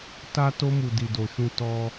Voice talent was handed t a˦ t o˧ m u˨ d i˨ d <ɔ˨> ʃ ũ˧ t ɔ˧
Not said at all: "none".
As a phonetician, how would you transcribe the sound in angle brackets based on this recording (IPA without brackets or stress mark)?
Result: o˨